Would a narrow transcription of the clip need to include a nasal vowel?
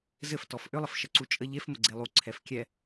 no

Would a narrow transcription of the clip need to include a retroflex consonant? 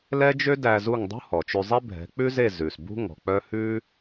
no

